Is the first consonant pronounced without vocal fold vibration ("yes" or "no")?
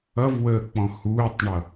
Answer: no